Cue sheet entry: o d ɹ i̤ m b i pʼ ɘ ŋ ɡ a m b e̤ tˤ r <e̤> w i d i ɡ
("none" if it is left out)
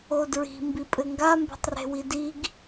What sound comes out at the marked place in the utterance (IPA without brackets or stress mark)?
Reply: e̤